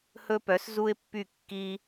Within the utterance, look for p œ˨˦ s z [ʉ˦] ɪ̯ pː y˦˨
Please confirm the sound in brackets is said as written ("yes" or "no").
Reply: no